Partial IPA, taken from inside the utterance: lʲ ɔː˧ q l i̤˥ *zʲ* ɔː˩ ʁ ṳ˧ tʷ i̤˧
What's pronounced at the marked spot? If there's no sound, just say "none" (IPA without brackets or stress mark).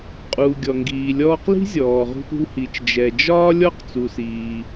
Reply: zʲ